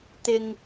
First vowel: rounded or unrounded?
unrounded